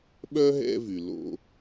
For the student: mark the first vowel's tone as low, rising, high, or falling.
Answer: high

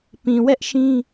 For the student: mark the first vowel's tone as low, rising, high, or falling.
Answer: low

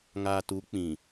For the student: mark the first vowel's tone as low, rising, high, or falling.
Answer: low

